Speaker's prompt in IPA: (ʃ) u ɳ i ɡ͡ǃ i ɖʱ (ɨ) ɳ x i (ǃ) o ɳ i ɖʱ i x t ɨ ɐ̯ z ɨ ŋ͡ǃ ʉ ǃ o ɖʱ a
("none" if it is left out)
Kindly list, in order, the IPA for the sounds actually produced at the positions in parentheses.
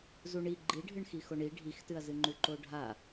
z, ɨ, x

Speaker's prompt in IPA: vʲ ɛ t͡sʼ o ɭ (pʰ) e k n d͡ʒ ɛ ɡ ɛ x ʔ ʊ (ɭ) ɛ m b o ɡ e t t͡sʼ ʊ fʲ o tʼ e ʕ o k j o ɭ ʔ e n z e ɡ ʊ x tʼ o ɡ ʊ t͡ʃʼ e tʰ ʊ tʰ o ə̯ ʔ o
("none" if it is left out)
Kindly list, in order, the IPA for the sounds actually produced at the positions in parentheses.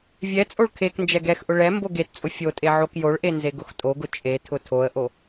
kʰ, ɭ

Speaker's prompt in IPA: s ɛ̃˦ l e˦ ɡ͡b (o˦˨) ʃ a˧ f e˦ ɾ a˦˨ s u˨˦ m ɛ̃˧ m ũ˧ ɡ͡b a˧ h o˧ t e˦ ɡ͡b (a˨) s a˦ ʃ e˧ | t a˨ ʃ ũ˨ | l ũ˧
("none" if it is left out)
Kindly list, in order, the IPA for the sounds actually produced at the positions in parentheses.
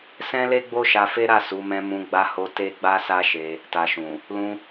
o˦, a˦

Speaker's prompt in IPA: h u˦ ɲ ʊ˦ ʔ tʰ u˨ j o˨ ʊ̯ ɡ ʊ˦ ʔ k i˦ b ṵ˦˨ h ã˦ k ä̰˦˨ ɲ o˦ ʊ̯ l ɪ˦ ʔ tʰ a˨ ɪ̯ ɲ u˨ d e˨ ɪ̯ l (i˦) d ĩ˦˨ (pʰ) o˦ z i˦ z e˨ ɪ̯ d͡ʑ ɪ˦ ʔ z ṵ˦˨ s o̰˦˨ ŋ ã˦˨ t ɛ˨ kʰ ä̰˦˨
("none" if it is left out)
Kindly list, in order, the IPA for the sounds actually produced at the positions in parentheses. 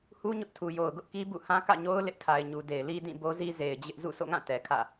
i˦, b

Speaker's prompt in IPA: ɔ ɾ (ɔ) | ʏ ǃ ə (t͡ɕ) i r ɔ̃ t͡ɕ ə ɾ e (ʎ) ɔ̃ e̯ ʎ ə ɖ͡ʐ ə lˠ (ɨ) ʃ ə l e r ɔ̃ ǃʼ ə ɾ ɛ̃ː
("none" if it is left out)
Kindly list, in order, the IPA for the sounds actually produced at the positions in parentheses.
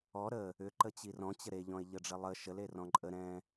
ə, t͡ɕ, ʎ, ə

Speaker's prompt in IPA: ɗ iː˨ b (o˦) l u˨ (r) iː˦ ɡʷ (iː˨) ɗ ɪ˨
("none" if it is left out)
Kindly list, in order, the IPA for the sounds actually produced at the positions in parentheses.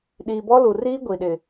ɔ˦, r, i˨

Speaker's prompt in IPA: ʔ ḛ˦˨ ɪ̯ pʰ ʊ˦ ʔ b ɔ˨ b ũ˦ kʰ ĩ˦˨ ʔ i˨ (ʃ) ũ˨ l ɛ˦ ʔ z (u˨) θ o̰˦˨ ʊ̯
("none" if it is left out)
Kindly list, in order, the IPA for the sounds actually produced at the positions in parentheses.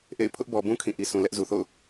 s, u˨

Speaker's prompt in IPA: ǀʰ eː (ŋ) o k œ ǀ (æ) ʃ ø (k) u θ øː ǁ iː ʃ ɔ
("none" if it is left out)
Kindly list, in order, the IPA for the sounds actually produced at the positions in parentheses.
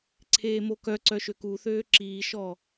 m, œ, k

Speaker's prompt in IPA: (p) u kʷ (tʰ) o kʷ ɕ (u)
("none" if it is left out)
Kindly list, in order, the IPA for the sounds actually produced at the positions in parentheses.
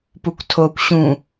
p, tʰ, ũ

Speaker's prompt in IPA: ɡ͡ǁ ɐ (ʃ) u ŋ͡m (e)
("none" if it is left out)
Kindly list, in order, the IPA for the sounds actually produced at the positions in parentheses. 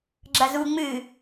z, ɨ

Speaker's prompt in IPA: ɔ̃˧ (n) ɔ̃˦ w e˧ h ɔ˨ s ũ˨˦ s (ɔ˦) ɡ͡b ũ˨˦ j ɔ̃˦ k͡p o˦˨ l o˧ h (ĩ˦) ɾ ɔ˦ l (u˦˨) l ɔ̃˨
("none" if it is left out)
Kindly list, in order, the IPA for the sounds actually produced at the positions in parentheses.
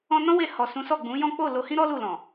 n, ɔ˦˨, ĩ˦, u˦˨

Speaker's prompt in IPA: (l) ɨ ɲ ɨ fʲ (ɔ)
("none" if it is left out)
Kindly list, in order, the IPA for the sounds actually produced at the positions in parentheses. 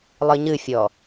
lˠ, ɔ

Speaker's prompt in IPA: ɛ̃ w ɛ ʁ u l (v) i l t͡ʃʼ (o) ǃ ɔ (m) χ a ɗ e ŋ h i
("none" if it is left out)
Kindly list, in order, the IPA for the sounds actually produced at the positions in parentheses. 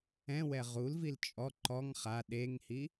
v, ɔ, ŋ

